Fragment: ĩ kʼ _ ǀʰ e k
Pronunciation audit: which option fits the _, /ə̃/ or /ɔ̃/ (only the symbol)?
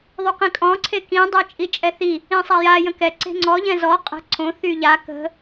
ɔ̃